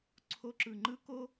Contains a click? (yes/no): yes